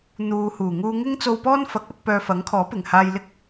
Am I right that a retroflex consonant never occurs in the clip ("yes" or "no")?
yes